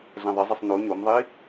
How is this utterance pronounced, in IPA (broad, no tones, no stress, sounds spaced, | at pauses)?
ɮ ɛ̃ ðˤ ə zˤ ə sˤ n o ɲ o m ðˤ i